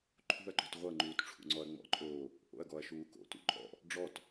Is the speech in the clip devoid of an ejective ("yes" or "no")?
no